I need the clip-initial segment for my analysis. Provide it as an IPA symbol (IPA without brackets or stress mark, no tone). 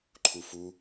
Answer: ǃʰ